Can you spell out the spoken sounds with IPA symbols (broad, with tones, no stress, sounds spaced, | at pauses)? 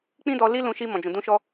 k͡p ĩ˦ d ɔ˧ l i˦ l ũ˧ ʃ i˧ m ɔ̃˨ d͡ʒ ũ˨ d ũ˧ ʃ ɔ˧